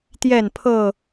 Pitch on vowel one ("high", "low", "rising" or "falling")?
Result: falling